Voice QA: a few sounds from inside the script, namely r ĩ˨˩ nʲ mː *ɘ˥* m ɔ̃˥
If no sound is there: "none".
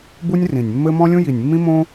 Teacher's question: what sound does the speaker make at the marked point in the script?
ɘ˥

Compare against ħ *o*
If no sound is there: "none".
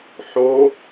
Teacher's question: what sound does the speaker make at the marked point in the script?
o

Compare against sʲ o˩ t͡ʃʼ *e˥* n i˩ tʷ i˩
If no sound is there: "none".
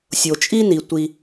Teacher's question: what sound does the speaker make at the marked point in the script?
i˥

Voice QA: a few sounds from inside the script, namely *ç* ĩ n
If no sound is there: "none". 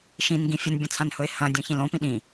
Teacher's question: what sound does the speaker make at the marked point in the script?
ʃ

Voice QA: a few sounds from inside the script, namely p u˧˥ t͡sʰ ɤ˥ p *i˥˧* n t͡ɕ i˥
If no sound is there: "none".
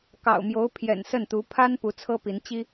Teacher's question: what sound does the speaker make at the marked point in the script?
i˧˥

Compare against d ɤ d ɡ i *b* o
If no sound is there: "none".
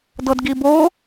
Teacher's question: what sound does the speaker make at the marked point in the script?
b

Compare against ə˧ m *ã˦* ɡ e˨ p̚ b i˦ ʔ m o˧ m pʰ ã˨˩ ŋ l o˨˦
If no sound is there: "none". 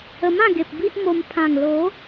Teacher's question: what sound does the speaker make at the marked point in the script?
ã˥˧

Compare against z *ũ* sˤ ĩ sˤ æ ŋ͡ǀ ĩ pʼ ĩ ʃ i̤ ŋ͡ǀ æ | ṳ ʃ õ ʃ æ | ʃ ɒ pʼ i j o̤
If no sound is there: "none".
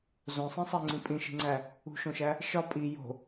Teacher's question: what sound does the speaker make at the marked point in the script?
õ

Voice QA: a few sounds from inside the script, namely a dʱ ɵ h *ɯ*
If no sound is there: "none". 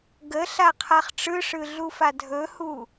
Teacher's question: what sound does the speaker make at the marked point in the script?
u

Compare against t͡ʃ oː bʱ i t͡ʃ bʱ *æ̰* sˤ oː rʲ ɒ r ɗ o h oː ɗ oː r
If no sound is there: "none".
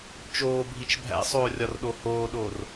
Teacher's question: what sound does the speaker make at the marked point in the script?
æ̰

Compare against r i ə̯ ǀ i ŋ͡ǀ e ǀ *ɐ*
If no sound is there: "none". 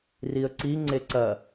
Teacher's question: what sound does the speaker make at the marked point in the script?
ɐ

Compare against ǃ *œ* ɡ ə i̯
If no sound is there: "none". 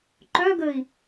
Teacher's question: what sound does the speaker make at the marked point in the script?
œ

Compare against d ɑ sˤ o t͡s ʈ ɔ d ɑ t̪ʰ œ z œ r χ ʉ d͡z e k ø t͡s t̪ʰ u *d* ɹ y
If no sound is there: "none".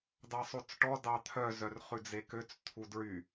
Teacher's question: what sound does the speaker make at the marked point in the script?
d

